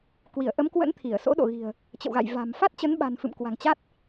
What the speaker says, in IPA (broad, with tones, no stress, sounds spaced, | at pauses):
k w i˧˩ ə̯ ʔ ə˨˦ m k w ə̰˧˥ n t̪ʰ i˧˩ ə̯ s o̰˧˥ ɗ o̰˧˨ ɣ i̤˨˩ ə̯ | t͡ɕ ə̰˧˨ w ɣ a̰˧˨ j v a̤˨˩ m f a˦˥ t̚ t͡ɕ ə˨˦ n ɓ a̤˨˩ n f ɨ̰˧˨ m k w a̤˨˩ ŋ t͡ɕ a˦˥ t̚